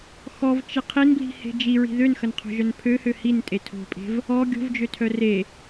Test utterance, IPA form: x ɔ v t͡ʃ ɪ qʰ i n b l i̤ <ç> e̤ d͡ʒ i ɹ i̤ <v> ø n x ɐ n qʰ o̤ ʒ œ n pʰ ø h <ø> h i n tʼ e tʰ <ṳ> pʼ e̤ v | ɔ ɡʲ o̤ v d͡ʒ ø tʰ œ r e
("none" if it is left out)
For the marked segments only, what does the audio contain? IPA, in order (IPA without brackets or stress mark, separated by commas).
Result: h, ð, ø, o̤